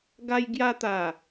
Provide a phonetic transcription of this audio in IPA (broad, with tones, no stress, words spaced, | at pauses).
ɡa˧jɡja˧t̪a˨˩